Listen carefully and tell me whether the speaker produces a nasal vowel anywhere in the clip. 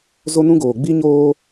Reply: yes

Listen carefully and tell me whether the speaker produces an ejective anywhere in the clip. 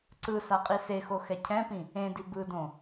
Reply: yes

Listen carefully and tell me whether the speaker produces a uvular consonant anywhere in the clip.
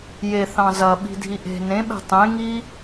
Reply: no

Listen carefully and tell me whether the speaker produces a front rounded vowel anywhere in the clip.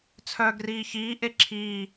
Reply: yes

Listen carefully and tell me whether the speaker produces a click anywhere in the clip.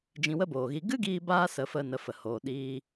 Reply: no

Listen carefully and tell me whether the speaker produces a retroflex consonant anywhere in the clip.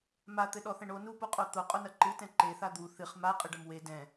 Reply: yes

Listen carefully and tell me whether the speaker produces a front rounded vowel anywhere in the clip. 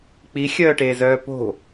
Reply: yes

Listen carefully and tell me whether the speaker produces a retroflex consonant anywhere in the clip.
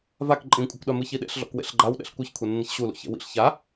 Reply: no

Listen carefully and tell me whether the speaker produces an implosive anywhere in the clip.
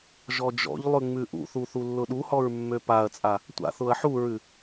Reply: yes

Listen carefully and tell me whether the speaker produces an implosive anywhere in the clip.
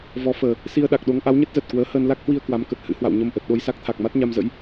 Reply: yes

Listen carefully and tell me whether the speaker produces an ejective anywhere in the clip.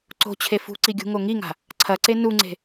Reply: no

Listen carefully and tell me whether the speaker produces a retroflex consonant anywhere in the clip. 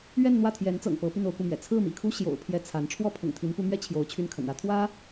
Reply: yes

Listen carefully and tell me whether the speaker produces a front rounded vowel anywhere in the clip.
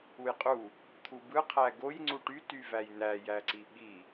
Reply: yes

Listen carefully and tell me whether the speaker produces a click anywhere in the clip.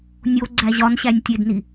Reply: yes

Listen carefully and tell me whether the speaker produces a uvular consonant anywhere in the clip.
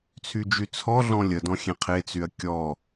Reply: yes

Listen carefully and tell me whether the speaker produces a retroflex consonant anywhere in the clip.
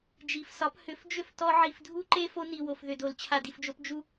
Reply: no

